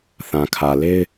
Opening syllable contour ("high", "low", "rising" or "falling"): low